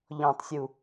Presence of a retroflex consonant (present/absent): absent